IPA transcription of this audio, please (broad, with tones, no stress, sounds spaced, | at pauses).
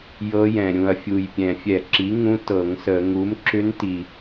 j ɤ˧˥ j ɛ̃˨˩ ɾʲ ũ˨˩ ɐ̯ fʲ u˨˩ j pʲ ɛ̃˨˩ fʲ ɛ˧˩˧ ǁ i˩˥ ŋ ũ˧˥ t ɤ˧˩˧ ŋ s ə˧˩˧ ŋ u˩˥ m ǁ ʏ˧˥ n t i˨˩